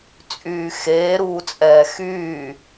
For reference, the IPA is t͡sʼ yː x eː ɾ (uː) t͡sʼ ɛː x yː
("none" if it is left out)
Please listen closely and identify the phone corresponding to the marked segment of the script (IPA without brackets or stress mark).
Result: uː